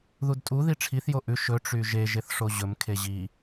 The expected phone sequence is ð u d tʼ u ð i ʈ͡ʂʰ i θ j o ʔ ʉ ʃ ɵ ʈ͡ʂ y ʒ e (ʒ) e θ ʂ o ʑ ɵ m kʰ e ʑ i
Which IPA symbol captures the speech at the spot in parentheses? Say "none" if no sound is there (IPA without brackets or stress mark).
ʒ